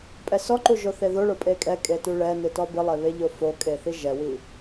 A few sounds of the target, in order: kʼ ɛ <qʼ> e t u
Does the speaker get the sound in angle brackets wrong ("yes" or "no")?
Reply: yes